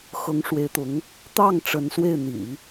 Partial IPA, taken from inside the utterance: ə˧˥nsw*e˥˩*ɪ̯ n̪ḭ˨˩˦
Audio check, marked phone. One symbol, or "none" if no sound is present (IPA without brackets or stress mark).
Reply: e˥˩